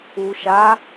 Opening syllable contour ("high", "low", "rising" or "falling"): low